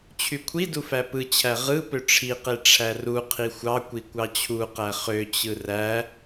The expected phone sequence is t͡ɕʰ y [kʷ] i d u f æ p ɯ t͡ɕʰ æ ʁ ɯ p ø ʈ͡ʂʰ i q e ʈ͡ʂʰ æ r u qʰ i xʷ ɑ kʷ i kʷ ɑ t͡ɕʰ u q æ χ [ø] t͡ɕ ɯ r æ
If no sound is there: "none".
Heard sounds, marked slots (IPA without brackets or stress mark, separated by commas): kʷʰ, ø